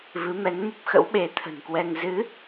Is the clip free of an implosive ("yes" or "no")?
no